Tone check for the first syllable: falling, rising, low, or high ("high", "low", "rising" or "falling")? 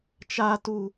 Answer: high